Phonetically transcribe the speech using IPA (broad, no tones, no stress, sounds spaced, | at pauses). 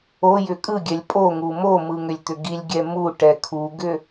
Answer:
o j ʏ kʼ ɯ ɡʲ ɛ lʲ pʼ o ŋ u m o m ɯ ŋ ʏ lʲ t̪ ʏ ɡ i lʲ ɡʲ ɛ m u ʈ ɛ kʰ u ɡ ʏ